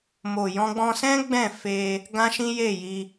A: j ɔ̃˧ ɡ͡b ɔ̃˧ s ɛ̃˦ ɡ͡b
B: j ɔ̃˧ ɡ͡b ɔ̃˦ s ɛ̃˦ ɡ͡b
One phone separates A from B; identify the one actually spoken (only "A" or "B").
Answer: A